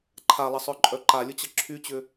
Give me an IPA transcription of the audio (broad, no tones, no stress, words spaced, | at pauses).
ǃʰalˠəsˤœ ǃʼœǃalʲʊt͡ɕə ǁʰyt͡ɕʏ